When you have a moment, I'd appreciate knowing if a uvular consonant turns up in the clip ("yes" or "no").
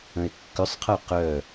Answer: yes